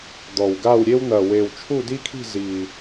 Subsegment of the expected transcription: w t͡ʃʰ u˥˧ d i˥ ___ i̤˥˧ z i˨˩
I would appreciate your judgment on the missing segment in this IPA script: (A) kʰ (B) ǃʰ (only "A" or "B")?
A